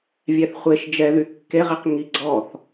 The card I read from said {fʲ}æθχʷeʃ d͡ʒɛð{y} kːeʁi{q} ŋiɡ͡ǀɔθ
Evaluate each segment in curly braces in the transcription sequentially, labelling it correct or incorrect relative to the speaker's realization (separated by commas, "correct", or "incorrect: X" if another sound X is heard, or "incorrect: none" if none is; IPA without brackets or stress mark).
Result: incorrect: vʲ, correct, correct